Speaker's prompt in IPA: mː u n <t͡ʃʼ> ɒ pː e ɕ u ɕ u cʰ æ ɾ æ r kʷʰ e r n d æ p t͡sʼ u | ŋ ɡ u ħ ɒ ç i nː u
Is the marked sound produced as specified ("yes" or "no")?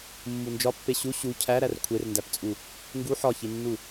no